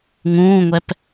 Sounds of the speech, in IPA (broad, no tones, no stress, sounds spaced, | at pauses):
ŋ ũː ŋʷ ɛ p